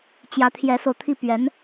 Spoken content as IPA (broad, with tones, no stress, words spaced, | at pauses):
t͡ɕjä˧˥t̪ʰjɛ˧˥so˧ʊ̯t̪ʰi˥˩ pɥɛ˧˥n